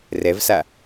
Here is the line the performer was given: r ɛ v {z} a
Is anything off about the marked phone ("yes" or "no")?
yes